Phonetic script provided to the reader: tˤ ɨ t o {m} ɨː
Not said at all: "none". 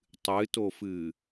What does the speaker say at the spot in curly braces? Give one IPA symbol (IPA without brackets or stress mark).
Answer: f